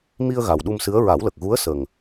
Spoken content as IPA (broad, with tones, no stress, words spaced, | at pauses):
mi˧ə̯ ɣa˨˩wɗu˧msɨ˧˥ə̯ ɹa˨˩˦wlə˨˩k̚ɣu˧˥ə̯ sə˨˩ŋ